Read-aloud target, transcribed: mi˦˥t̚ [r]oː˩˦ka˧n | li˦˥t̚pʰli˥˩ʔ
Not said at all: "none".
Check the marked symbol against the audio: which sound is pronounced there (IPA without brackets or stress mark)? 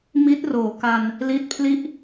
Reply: r